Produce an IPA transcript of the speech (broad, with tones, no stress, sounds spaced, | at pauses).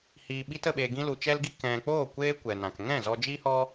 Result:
h iː˨ ɓ i˧ t ə˨ ɓ eː˨ ɡ ĩ˧ l u˨ t͡ʃ ɛ˧ l ɡ i˧ k ɛ̃˨ k͡p oː˦˨ kʷ eː˦ kʷ ɛ˨ n ã˨ k ŋ ɛ̃˦˨ z ɔ˧ d͡ʒ iː˦ h ɔ˦